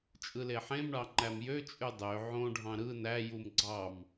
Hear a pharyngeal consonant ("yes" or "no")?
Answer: yes